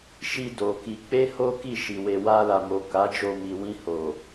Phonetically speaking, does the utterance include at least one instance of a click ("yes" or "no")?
no